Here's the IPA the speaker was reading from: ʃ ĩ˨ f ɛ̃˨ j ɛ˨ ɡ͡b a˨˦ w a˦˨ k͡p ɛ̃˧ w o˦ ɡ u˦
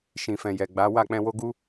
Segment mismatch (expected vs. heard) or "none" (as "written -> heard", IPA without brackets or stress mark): none